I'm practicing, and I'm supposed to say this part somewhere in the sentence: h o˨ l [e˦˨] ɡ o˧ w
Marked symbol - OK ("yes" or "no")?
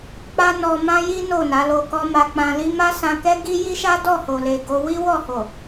no